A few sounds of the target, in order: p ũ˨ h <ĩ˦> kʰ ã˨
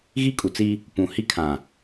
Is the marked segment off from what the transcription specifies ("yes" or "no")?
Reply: yes